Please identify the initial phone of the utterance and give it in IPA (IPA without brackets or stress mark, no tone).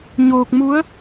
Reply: ɲ